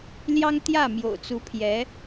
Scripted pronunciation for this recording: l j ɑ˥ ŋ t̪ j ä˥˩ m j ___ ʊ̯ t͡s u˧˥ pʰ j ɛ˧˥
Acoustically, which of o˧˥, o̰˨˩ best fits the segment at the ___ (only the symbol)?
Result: o̰˨˩